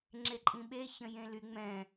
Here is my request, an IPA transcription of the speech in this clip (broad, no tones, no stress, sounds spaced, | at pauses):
ŋ͡ǁ e ǃʼ ĩ ɓ e ç ə̃ j ẽ l y ŋ͡m ɛ̃